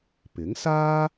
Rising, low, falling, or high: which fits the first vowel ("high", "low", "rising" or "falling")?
rising